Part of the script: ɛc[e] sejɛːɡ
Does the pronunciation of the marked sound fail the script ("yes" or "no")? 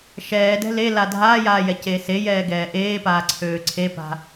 yes